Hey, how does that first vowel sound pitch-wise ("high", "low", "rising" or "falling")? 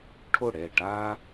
falling